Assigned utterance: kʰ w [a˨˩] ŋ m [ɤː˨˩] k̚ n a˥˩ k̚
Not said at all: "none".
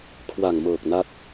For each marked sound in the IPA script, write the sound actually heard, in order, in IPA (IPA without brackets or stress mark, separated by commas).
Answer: a˨˩, ɤː˨˩